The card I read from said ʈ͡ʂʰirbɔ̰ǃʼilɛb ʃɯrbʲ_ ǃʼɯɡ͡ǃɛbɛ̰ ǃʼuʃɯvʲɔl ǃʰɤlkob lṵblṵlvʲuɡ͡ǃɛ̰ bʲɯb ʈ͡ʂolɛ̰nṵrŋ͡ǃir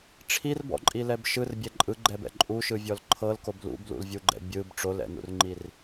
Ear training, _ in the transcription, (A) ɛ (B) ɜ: A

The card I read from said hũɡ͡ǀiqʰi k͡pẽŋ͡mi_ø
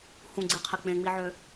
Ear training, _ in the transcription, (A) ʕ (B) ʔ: A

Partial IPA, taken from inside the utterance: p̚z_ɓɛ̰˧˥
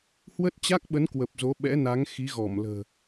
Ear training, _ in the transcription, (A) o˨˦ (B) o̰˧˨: A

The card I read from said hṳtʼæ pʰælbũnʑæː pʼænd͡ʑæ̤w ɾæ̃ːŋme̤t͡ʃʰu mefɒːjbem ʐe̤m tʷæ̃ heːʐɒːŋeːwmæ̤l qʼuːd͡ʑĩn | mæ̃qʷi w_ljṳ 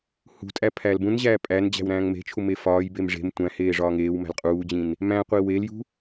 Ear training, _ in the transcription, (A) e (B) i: A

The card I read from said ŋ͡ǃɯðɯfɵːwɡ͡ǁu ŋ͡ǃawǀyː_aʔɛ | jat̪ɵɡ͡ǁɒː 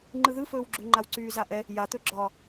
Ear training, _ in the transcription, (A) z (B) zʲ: A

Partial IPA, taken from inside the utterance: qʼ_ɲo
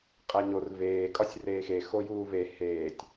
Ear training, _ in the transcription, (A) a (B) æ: B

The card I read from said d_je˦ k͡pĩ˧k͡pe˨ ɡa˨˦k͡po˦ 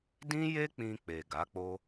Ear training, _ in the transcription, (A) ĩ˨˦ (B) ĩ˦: B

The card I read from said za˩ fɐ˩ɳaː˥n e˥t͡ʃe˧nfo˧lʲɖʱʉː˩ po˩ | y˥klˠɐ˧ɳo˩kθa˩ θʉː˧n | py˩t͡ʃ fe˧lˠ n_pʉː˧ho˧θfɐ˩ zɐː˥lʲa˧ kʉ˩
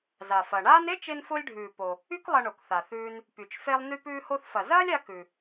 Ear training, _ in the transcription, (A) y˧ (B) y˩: A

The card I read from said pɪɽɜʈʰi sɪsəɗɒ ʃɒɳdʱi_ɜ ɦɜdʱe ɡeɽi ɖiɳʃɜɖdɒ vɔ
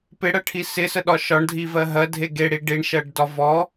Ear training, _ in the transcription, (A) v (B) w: A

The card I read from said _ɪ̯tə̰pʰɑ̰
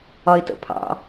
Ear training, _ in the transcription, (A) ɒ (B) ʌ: A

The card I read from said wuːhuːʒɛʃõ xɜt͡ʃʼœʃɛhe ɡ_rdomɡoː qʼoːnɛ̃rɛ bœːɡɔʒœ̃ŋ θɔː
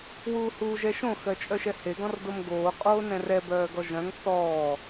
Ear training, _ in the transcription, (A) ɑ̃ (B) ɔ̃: B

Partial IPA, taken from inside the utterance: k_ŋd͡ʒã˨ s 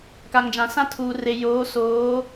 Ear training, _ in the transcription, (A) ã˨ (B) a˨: B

